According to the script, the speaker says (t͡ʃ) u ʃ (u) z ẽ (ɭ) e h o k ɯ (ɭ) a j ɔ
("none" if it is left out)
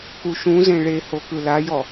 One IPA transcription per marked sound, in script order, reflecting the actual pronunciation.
k, ũ, ɭ, l

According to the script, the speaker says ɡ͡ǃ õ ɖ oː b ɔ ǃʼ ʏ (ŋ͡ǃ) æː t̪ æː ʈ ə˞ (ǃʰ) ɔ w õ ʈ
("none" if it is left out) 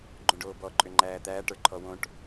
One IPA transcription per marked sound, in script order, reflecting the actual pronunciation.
ŋ͡ǃ, ǃʰ

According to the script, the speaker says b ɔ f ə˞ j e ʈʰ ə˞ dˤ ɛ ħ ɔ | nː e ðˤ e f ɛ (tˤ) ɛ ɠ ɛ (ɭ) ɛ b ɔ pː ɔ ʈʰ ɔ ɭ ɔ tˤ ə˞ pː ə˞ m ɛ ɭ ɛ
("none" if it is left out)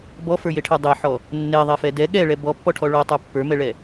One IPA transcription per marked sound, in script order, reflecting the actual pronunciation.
d, ɭ

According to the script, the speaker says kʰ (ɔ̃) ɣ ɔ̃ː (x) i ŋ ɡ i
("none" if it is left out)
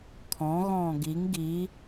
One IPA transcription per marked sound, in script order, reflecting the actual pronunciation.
ɔ̃, ɡ

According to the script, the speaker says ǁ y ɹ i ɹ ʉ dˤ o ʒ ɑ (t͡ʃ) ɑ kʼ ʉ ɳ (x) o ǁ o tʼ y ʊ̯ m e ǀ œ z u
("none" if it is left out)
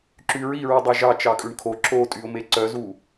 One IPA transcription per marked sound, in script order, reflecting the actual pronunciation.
t͡ʃ, kʰ

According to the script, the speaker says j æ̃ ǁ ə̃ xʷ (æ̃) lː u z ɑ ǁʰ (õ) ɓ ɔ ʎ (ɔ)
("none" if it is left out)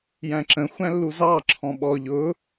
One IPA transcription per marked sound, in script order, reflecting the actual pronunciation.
æ̃, ɔ̃, ʊ

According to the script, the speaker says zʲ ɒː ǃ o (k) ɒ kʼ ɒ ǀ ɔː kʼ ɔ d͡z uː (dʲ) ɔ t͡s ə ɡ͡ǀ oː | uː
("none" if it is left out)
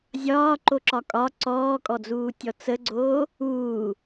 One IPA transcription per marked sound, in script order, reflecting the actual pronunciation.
ǁ, tʲ

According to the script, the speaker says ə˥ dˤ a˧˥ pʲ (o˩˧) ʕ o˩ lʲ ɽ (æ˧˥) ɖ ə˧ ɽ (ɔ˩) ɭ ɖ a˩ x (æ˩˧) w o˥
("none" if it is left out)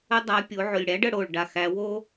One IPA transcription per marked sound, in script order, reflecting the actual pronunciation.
o˩˧, æ˧˥, o˩, æ˩˧

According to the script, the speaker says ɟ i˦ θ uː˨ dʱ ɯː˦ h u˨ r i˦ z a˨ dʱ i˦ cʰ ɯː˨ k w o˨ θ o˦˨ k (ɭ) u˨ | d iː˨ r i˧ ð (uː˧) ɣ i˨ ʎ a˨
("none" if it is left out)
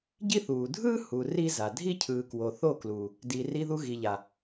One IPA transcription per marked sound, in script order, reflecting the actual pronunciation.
l, u˧

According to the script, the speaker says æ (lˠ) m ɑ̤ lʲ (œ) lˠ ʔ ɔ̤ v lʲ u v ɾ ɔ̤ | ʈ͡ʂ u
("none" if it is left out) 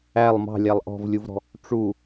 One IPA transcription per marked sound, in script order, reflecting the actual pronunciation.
lˠ, æ

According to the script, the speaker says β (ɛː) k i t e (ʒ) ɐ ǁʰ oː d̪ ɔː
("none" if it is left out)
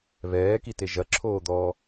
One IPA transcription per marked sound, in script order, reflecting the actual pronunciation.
ɛː, ʒ

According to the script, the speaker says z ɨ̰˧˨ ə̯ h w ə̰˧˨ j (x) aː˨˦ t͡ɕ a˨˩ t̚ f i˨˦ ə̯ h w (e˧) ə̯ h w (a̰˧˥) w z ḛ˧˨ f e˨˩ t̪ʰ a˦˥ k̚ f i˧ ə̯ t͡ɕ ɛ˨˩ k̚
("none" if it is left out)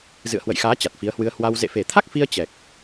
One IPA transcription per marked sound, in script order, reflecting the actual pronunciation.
x, ɨ˧, a˧

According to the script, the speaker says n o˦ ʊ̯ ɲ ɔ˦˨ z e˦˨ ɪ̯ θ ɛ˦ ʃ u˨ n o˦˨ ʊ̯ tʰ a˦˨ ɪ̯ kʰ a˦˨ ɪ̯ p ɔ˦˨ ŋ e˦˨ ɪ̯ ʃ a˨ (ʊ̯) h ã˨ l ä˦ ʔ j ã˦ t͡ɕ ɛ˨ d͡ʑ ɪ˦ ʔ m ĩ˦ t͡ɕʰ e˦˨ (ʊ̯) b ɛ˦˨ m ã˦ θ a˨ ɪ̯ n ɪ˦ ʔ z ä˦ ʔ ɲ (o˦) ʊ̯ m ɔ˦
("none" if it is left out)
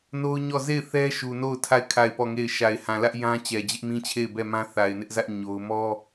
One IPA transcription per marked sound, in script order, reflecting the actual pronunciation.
ɪ̯, ɪ̯, o˦

